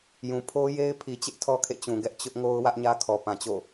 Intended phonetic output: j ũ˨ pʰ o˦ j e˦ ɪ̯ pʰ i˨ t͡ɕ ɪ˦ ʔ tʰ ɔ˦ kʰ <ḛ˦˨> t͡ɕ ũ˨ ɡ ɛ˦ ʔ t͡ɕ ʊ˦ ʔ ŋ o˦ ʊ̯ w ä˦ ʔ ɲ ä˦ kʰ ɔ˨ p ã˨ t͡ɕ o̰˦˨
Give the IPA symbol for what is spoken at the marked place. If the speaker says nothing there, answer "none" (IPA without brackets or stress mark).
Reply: ḛ˦˨